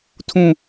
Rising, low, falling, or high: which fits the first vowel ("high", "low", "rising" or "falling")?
high